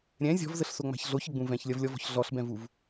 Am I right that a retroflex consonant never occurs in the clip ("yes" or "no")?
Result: yes